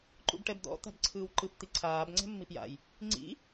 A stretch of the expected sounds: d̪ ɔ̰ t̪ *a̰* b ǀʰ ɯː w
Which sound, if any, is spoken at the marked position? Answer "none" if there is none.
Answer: a̤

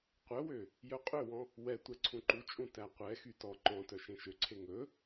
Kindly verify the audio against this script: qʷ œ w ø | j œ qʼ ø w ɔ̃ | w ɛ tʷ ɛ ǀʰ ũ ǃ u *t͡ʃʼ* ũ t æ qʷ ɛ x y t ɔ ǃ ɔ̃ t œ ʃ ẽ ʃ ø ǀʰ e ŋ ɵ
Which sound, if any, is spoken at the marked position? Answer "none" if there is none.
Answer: t͡ʃʼ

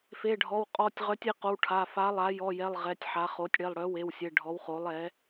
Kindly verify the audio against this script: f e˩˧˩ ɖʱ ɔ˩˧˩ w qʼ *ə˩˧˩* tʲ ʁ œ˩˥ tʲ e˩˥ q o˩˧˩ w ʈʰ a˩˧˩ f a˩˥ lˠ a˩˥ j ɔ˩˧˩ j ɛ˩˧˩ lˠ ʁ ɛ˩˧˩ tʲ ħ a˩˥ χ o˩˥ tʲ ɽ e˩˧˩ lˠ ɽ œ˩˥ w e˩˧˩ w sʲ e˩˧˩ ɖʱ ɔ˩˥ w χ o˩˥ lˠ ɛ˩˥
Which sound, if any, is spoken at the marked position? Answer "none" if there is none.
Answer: ɔ˩˧˩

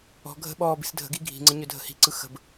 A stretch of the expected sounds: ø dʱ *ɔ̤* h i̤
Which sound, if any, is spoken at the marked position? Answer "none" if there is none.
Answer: ə̤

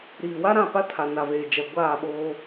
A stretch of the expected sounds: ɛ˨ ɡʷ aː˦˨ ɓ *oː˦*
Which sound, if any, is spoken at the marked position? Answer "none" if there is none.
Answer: oː˦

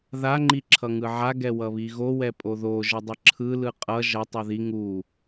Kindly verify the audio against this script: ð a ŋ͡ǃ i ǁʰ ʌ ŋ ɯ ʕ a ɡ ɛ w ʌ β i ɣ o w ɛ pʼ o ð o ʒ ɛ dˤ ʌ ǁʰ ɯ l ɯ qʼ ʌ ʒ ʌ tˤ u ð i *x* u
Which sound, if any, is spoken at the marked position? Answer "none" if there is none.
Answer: ŋ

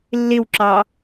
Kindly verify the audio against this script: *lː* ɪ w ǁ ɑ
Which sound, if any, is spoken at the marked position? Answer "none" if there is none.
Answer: lː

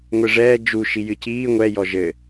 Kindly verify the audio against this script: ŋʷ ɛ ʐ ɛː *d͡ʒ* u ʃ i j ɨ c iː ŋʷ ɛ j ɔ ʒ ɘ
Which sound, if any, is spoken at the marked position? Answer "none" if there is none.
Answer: d͡ʒ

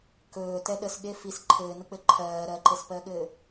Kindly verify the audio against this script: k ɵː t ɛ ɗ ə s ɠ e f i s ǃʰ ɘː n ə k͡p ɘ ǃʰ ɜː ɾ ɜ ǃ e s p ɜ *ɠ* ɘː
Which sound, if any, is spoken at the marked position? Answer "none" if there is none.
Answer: ɠ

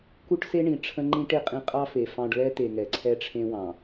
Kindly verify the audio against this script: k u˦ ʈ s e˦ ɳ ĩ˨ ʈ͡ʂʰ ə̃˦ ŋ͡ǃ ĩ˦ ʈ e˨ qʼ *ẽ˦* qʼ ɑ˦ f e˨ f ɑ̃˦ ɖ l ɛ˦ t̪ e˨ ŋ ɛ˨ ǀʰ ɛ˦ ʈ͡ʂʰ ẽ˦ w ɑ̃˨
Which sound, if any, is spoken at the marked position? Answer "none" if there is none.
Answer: ĩ˦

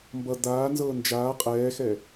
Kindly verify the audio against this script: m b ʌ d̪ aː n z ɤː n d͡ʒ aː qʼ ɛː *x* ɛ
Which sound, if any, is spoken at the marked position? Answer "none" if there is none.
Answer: x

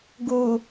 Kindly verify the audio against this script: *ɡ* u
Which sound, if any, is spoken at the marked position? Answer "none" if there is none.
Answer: ɡ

